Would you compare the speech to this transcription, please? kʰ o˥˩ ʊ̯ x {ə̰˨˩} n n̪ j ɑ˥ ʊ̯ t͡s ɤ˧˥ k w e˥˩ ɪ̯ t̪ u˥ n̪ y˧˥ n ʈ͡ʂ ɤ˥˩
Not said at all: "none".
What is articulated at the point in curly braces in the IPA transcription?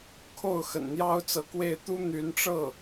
ə̰˨˩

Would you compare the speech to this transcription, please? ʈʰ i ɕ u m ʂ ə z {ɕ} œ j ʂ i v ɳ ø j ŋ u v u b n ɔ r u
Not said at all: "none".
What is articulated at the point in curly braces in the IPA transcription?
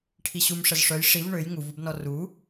ʂ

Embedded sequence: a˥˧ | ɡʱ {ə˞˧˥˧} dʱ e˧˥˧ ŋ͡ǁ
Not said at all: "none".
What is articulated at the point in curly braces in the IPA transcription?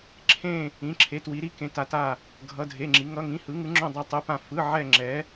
ʌ˧˥˧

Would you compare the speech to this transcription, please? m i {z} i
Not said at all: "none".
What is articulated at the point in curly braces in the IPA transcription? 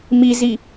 z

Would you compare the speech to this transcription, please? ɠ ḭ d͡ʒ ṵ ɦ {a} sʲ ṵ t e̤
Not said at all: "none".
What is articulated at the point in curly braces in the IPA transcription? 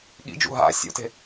a̰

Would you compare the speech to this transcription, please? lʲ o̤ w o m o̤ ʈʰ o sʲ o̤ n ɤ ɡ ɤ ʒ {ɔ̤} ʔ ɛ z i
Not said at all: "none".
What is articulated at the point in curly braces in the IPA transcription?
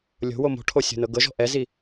ɔ̤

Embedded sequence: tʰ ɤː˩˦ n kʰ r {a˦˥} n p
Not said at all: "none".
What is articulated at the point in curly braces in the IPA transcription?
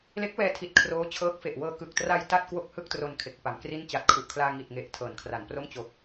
a˩˦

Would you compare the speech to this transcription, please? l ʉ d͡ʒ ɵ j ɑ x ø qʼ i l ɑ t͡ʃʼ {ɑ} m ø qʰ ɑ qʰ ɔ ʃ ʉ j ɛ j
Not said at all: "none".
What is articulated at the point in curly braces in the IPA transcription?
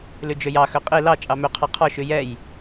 ɑ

